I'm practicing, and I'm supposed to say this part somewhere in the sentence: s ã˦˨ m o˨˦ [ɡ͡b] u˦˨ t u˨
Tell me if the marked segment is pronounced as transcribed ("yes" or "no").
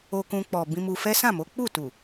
no